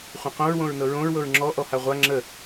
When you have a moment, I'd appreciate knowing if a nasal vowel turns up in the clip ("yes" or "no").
yes